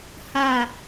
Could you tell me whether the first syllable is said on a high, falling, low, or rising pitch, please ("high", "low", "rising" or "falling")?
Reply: falling